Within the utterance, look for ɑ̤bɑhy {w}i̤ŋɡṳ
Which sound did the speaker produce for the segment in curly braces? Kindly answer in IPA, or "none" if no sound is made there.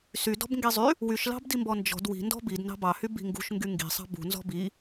b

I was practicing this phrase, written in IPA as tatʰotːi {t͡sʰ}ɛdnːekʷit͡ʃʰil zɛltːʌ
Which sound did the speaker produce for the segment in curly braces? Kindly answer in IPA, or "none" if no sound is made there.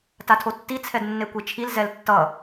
t͡sʰ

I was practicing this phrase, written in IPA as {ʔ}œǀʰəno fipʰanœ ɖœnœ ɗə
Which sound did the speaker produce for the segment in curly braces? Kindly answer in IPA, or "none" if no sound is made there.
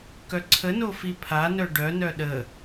k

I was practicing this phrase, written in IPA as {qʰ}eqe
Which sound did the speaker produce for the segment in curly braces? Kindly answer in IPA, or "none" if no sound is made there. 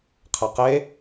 qʰ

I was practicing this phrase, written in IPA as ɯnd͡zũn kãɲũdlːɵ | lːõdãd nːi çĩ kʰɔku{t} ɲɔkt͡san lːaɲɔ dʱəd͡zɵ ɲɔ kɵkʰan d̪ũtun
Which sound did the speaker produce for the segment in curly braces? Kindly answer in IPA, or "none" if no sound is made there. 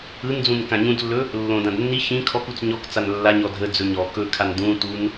t͡s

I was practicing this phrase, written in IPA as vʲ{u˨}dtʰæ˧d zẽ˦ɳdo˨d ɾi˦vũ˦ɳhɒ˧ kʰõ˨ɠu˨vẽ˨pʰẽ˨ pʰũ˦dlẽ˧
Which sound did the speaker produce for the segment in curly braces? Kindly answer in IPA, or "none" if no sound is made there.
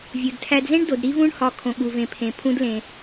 u˨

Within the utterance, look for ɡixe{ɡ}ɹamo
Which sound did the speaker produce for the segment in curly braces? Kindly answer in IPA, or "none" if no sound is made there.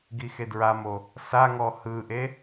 d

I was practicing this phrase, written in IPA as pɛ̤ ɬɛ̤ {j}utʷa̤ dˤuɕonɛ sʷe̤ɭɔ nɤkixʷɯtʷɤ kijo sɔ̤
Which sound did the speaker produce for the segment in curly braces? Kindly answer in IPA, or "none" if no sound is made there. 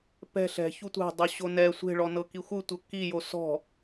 ç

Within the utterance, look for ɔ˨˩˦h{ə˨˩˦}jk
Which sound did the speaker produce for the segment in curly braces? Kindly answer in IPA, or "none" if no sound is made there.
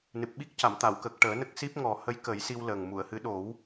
ə˧˥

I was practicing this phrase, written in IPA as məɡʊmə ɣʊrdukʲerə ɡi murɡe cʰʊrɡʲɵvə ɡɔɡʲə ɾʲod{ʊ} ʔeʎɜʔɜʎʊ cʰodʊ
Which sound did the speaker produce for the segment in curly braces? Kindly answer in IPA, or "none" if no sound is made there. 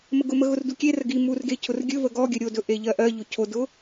ɵ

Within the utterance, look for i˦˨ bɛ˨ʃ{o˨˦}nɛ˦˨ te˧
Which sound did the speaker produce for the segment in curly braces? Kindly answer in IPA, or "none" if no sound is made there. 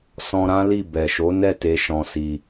o˨˦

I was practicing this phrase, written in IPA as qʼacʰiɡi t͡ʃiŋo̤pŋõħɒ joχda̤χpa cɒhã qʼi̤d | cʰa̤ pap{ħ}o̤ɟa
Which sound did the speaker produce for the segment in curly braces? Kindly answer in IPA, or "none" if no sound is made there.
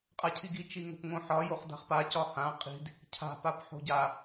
ħ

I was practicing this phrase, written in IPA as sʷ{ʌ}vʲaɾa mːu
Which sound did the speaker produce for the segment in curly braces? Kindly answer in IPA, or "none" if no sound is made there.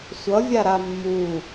ʌ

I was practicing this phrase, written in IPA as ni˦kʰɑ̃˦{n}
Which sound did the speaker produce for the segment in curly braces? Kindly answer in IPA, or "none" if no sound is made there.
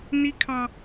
none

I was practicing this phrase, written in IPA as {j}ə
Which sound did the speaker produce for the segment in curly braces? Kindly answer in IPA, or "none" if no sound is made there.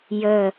j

